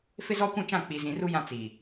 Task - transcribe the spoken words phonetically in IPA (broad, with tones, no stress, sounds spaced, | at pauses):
f ɪ˦ z ɔ˦ kʷ ũ˦˨ t͡ʃ ã˦˨ k͡p i˨ z ĩ˨ r u˦ j ã˦ t͡s iː˨